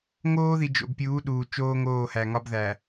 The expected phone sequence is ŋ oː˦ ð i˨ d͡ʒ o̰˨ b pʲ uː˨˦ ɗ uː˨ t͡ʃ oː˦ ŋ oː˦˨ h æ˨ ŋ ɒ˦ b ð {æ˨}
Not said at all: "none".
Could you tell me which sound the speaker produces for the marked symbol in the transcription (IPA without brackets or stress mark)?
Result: æ˨